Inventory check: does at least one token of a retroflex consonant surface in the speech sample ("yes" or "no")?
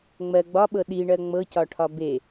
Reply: yes